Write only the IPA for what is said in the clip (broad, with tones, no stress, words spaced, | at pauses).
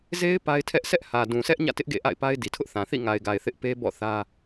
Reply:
ze˦ɪ̯ pa˦ɪ̯tʰɛ˦ʔ sɛ˦ʔhä˨dũ˨sʰɛ˦ʔ ɲä̰˦˨tɪ˦ʔ ɡḛ˦˨ʔa̰˦˨ɪ̯pa˦ɪ̯ di˨tʰʊ˦ʔθã˨ θḭ˦˨ŋa˨ɪ̯ɡa˨ɪ̯ θɪ˦ʔpe˦ bɔ̰˦˨ θä˦